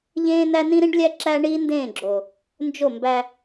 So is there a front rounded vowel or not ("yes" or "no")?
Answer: no